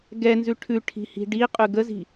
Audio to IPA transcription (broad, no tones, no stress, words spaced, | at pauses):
ɡɛnzʉ ʈʰʉʈʰi̤hi̤ ɖiqʼʉ ɡəzi̤